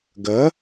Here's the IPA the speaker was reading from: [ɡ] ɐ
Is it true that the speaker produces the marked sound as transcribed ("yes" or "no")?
yes